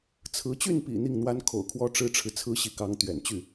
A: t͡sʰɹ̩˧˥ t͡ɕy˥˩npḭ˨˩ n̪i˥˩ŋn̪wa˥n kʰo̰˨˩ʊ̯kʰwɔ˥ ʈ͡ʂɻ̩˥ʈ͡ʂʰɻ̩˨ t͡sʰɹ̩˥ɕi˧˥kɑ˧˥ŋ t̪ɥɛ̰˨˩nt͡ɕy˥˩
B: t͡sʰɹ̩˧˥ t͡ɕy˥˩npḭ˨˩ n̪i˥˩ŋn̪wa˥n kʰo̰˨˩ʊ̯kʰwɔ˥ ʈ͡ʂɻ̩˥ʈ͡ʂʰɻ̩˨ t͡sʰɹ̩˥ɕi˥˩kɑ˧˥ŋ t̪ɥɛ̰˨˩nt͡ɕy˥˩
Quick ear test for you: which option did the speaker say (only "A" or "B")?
A